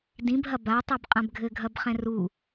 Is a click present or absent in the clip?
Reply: absent